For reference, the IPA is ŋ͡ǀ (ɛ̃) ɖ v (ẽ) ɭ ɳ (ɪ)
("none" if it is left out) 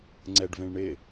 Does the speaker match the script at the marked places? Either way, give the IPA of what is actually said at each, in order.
ɛ, ẽ, ɪ

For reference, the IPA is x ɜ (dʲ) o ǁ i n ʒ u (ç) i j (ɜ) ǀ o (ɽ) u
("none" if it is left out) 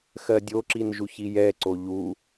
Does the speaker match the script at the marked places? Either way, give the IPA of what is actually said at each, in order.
dʲ, ç, ɛ, ʎ

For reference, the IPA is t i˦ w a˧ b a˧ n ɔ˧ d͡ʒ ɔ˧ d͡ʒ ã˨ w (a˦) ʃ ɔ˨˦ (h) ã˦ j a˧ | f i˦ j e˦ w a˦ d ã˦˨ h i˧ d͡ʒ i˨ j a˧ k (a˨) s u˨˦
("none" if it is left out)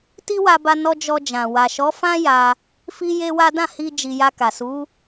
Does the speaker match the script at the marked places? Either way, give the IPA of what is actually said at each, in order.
a˨, f, a˨

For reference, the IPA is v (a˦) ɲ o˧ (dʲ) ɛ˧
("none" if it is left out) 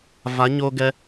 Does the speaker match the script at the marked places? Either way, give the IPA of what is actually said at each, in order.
a˨˦, ɡ

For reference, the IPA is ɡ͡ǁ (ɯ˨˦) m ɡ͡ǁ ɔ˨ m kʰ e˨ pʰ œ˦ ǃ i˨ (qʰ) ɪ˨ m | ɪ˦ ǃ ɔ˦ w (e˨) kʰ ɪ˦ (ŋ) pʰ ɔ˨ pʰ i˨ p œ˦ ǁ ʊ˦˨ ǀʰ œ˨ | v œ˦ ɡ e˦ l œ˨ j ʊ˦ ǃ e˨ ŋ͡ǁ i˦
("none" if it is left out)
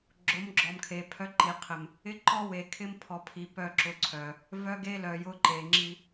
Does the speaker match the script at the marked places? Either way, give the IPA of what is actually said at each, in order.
ʊ˨˦, qʰ, e˨, m

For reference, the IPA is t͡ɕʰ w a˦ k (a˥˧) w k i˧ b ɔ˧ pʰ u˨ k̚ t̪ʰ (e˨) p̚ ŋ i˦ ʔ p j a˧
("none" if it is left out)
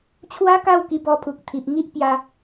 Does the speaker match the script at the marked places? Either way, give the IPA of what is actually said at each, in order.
a˥˧, i˨

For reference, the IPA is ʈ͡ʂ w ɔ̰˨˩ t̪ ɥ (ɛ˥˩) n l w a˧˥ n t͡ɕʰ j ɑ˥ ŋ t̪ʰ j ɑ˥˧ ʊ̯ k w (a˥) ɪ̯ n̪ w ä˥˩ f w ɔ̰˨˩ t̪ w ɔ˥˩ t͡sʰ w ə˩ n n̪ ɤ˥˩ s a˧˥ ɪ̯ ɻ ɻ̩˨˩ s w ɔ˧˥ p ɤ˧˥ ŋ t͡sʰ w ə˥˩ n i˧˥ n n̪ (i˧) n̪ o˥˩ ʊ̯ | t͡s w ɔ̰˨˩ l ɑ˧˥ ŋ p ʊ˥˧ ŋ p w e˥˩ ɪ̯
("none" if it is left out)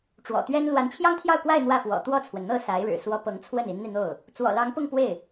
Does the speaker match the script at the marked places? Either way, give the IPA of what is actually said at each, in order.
ɛ˥, a˥˧, i˧

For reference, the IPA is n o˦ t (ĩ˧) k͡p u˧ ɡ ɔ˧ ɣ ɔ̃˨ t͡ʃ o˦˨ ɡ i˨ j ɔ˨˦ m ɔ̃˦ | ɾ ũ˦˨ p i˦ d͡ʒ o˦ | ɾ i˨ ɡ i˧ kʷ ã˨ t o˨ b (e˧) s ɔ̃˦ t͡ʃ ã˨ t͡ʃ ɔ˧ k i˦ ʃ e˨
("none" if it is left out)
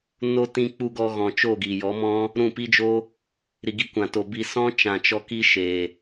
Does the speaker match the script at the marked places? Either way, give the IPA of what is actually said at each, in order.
ĩ˧, i˧

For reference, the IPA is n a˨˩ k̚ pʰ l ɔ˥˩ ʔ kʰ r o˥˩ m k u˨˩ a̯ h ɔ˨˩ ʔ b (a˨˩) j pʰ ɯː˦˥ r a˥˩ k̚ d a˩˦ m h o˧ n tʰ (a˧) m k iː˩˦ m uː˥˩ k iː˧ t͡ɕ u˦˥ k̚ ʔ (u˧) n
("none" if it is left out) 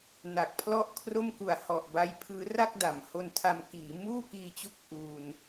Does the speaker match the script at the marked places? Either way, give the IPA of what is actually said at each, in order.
a˧, a˧, uː˧

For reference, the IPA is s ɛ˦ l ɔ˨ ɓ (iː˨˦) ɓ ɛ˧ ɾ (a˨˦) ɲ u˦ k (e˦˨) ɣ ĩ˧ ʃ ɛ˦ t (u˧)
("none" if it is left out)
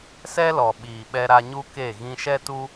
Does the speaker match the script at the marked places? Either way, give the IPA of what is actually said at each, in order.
iː˨, a˧, e˦˨, u˦

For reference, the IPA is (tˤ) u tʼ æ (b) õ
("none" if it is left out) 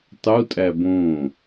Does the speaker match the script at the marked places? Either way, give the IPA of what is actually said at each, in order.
tˤ, b

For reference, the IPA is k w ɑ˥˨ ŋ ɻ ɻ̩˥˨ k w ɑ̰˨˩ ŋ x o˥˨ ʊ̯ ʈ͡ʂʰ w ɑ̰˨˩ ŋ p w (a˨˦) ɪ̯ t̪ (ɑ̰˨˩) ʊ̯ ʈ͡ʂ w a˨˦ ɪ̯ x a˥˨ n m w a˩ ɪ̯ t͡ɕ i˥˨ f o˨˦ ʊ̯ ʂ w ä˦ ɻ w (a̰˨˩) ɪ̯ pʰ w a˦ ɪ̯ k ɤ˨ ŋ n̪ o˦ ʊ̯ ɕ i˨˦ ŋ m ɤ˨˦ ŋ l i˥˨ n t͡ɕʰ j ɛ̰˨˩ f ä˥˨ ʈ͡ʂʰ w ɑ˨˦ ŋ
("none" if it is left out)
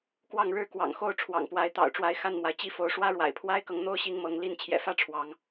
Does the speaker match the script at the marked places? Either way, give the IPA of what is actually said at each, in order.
a˨˦, ɑ̰˨˩, a̰˨˩

